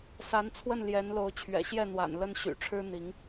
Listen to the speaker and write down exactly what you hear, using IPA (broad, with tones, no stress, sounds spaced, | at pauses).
s a˨˦ n t͡sʰ w ə˥˨ n l j ɛ˨˦ n l o˨˦ ʊ̯ t͡ɕʰ ɥ ɛ̰˨˩ ɕ j ɛ˥˨ n̪ w a̰˨˩ n l ə˦ n ɕ y̰˨˩ ʈ͡ʂʰ ɻ̩˦ n̪ i˨˦ ŋ